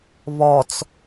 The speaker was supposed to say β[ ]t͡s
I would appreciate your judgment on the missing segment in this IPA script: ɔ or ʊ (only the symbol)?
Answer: ɔ